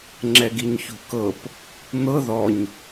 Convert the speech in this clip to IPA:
ŋ͡ǁ ɛ ɡ i ɲ ç ṳ k ɤ p | n̪ ɤ ð ɔ ɲ

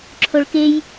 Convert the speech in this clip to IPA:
ǁʰ o ɭ k e j

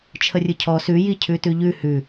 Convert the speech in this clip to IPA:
t͡ʃʰ ə rʲ ɯ cʰ ɔ s ʉ j i cʰ ʉ t ʉ ʎ ʉ h ʉ

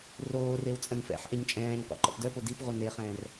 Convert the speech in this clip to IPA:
r oː r e w t͡sʼ ə̃ n f ɛ̰ ħ ʔ e ɲ t͡ʃʼ ɛ̃ː ɲ qʷ ɛ̰ ǃ ɔ̰ p d œ p o d i p ʁʷ œ n e χ ɛ̃ː r

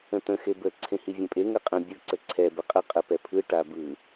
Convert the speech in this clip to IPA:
ə̃ t̪ ə̃ x e b ə ǀʰ ẽ h i vʲ ẽ pʼ e ŋ ə qʼ ə̃ bʲ ɯ ǀ ə ǀʰ ɛ b ə qʼ ə qʼ ə p ɛ pʰ ɯ ʈ a b ɯ

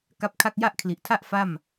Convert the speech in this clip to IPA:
k a˦˥ p̚ kʰ a˥˩ k̚ j a˥˩ ʔ kʰ l i˨˩ ʔ tʰ a˥˩ ʔ f a˥˩ m

